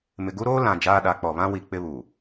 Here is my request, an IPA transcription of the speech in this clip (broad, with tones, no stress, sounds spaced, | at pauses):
m ɪ˨ ɡ u˦ ɾ oː˦ l ã˨ d͡ʒ aː˦ ɗ a˨˦ k͡p ɔ˨ β ã˦ w i˨ k͡p ɪ˦ β u˨